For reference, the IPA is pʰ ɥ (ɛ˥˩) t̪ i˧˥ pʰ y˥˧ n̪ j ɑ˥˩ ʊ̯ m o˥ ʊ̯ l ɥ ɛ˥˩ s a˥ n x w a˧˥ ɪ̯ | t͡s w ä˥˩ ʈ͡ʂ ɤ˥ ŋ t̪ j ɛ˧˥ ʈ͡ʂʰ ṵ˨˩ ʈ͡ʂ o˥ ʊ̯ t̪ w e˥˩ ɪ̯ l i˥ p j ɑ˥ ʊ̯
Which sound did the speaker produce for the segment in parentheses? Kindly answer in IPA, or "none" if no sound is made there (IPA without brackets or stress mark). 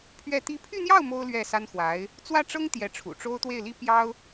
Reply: ɛ˥˩